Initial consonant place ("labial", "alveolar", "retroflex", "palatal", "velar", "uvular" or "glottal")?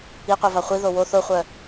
uvular